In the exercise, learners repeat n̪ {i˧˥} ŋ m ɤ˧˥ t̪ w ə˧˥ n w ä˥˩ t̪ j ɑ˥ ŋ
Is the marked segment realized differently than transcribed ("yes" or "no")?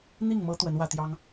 yes